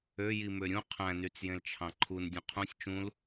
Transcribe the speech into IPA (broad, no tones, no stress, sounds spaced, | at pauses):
ø j i m ø ɾʲ ũ qʰ æ̃ n y t͡s j ẽ l t͡ʃʰ ɑ̃ ǃʰ u n dʲ ũ qʰ ũ sʲ t͡ʃ ũ l